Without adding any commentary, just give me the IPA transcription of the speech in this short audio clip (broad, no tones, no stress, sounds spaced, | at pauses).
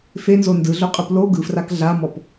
f e n z o n d ɯ ɮ o qʼ ɯ p l o ɡ ɯ f r a k ɮ a m ɔ p